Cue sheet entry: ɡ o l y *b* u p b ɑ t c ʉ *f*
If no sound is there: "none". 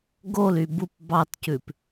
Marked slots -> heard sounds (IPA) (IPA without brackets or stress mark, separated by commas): b, p